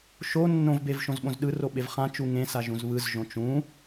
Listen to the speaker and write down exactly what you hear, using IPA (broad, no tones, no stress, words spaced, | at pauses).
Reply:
ʃo nːõvbev ʃõzɓõzɗɯro ɓevχãt͡ʃu ŋẽsa ʒũzβɯzʒõ t͡ʃũ